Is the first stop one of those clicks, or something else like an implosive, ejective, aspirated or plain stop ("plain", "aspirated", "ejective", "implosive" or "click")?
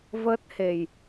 plain